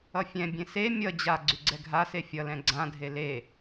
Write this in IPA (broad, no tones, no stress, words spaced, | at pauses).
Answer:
ʌfʲɛ̃bʲẽ se mʲʌ d͡ʑa ɡ͡ǀyɡ͡ǀɛɡʱase fʲʌlɛ̃ ɡ͡ǀãdʱe le